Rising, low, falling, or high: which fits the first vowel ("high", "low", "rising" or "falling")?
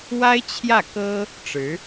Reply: high